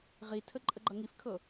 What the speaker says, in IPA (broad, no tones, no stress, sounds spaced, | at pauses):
ʁ i tʰ ə ǃʼ ə ɡ͡ǃ ʌ ŋ i f kʰ ɤ